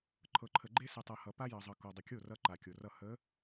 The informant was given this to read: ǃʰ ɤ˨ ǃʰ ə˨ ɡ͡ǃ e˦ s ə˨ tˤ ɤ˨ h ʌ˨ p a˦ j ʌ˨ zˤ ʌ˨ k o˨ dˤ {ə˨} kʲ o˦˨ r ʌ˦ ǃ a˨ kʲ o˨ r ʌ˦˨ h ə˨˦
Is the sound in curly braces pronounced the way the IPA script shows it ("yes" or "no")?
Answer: yes